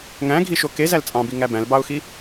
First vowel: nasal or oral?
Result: nasal